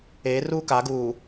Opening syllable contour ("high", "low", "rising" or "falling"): rising